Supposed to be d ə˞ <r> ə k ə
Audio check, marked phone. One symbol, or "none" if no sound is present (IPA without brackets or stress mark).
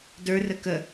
r